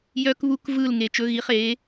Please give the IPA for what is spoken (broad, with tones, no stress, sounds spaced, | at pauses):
j œ˧ k β u˧ k v ɯː˥˩ l ŋ e˩ t͡ʃ ɵ˩˥ ɣ i˩˥ χ eː˩˥